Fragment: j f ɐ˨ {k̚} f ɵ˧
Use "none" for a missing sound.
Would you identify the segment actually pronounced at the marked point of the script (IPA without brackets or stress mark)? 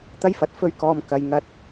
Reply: t̚